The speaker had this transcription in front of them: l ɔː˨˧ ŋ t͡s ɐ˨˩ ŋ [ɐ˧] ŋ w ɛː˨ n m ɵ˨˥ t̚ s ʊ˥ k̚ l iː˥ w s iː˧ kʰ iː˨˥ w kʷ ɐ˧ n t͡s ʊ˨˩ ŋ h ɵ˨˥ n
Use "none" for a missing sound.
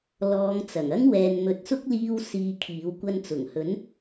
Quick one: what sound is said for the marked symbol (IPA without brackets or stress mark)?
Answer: ɐ˥